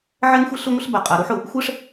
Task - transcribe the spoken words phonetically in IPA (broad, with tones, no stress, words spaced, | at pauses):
ʕɛ˥ŋxʷɪ˥ɬʊ˥ŋʷɪ˥ɬ ba˧qʼa˧ɾu˥ħ ʊ˧ | xʷɛ˥ʂ